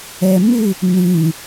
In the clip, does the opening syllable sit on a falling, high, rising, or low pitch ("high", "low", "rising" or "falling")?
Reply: low